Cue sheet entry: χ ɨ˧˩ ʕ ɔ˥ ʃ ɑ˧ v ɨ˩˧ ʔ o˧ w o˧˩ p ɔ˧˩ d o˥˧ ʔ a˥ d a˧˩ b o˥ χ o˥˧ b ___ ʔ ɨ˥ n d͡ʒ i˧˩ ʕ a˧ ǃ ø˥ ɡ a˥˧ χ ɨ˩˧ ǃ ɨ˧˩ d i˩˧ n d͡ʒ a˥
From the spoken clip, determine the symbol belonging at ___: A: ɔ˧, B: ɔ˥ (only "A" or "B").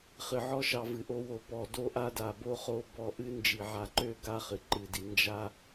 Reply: A